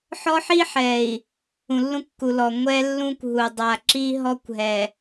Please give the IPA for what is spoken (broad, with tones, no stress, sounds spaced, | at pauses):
ħ ɔ˦ ħ i˦ ħ ɛ˨ i̯ | ũ˨ lː ũ˦ kː u˨ l ɔ˨ ŋʷ ɛ˦ lː ũ˦ kʷ ɦ u˨ dˤ a˨ ǁ i˦ ɦ ɔ˦ kʷ ɦ ɛ˨